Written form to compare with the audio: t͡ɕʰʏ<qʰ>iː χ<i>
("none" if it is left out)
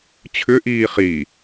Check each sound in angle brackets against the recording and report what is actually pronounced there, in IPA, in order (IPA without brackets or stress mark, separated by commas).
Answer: ʔ, i